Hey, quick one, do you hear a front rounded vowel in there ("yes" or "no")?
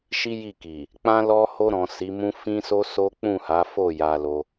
no